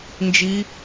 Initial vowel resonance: oral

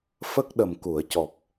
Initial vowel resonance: oral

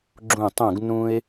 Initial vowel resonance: nasal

